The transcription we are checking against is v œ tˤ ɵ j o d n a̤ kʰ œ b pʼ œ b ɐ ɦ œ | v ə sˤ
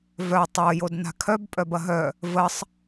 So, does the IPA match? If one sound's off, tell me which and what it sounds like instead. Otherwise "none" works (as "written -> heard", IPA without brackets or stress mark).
ɵ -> o